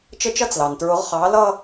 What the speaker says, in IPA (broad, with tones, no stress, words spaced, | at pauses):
t͡ʃə˧t͡ʃʌ˧˥t͡slɑ˩ntɹʊ˩˧ʁ χɑ˩˧lʌ˧